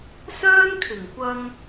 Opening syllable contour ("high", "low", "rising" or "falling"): high